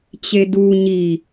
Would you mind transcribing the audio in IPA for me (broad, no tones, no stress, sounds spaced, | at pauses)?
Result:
t͡ɕ e d u ɲ i